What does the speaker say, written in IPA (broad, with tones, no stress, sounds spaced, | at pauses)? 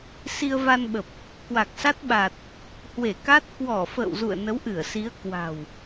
s i˧ ə̯ v a˧ n ɓ ə˨˩ p̚ | k w a˨˩ k̚ s a˦˥ t̚ ɓ a˨˩ t̚ | h w e˧˩ k a˦˥ t̚ k w ɔ˧˩ f ə̰ː˧˨ w z ṵ˧˨ ə̯ n ə˨˦ w ʔ ɨ˧˩ ə̯ s i˨˦ ə̯ k w a̤˨˩ w